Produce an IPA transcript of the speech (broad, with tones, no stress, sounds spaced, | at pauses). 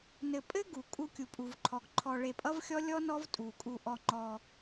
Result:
n ɘ˧ pʼ ɘ˦ ɡ u˨ kʼ u˧ kʲ u˨ pʼ u˨ v ǃʰ ɔ˨ ɡ ǃʰ ɔ˧ ɭ e˧ pʼ ʌ˦ v xʲ ɔ˦ lʲ ɔ˦ n ɔ˦ v tʼ u˨ kʼ u˧ ʔ ɔ˧ ŋ͡ǃ ɔ˧